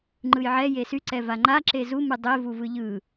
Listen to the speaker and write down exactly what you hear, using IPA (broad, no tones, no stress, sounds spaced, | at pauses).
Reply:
ŋ͡ǃ ɯ j ʕ ɛ j e s y ǀ ɛ v a ŋ͡ǃ a ǁ e z u m ɨ dˤ e v u v ɯ ʎ ɯ